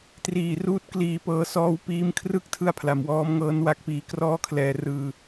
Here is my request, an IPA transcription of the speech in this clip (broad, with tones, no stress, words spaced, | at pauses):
triː˨˩ruː˥˩t̚kliː˧pɤː˦˥ sɔː˧wpiː˧mkʰrɯ˥˩k̚tʰɯ˧a̯ pʰla˩˦mwɔː˦˥mŋɤː˦˥nwa˦˥k̚ piː˧krɔː˥˩kʰlɛː˧ rɯː˧